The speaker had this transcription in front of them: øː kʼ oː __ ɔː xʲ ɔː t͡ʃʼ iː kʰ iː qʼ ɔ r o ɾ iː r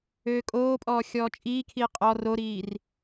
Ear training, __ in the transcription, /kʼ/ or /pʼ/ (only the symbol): pʼ